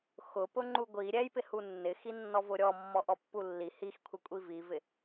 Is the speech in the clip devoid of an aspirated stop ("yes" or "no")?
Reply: no